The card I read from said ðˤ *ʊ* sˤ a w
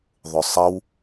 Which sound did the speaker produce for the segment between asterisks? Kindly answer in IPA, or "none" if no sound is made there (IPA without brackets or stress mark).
ʊ